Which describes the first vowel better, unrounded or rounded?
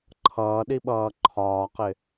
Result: unrounded